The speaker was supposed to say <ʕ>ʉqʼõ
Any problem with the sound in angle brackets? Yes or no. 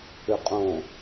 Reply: yes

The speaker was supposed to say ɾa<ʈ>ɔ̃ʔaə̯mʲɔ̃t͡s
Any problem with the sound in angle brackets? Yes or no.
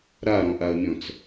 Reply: yes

